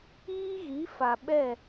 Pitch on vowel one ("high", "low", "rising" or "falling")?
high